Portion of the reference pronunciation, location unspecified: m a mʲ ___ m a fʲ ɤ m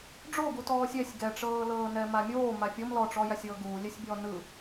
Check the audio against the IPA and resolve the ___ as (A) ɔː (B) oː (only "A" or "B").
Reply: B